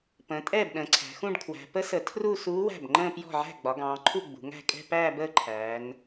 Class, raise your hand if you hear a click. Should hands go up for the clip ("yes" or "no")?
yes